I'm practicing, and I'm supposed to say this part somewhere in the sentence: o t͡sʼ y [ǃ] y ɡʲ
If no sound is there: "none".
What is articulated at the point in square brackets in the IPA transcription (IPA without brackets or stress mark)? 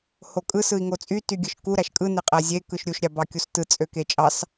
t